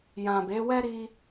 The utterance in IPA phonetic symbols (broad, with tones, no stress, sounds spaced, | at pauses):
j ã˨ b e˨˦ w ɛ˦ ɾ i˦